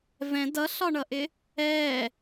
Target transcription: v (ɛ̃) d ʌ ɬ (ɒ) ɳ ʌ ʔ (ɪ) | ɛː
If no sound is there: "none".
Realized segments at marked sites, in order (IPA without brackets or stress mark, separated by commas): ɛ̃, ɒ, ɪ